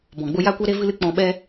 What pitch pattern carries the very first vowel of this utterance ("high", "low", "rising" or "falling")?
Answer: low